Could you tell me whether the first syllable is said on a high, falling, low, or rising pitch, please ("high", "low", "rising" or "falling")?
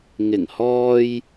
low